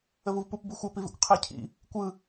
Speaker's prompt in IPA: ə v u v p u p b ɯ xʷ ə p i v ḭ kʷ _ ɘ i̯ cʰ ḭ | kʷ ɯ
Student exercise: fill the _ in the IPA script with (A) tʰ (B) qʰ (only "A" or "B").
B